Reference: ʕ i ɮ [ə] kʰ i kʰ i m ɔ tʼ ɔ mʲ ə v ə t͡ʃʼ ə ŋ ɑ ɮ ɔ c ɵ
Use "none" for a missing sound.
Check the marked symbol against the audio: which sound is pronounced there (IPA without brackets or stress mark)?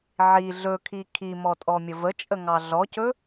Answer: ɵ